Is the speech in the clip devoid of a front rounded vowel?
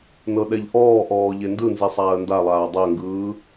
yes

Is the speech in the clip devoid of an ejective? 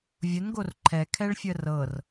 yes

